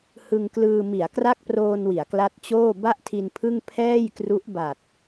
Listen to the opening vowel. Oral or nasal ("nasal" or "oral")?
oral